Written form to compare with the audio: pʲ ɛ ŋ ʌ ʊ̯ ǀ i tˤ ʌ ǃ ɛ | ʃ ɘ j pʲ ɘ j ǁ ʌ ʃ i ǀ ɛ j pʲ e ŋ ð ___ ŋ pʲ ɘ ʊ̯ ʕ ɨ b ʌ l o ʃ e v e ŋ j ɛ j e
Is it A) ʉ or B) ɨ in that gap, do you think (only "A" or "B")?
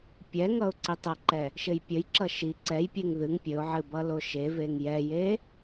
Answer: B